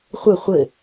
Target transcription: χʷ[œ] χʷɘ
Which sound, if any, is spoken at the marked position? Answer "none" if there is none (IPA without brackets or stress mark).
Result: œ